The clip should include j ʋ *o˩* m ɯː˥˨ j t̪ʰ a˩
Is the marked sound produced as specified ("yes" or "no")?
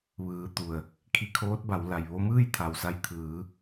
no